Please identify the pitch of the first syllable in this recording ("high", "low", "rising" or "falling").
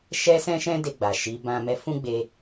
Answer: high